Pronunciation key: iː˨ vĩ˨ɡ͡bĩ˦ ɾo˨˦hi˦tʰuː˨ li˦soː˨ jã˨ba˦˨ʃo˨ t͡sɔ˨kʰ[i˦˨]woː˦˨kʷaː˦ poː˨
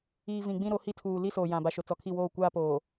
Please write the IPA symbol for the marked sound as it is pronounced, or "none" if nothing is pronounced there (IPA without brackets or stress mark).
i˦˨